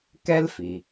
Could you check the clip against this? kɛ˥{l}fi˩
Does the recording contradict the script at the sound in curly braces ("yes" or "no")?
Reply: no